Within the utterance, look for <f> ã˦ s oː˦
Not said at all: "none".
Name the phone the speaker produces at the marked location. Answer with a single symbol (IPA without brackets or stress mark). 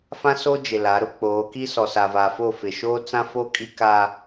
f